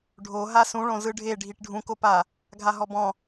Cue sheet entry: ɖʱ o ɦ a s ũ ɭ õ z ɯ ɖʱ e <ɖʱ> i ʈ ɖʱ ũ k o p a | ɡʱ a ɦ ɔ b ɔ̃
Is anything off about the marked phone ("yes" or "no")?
no